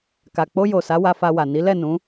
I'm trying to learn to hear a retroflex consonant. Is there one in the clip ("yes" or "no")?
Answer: no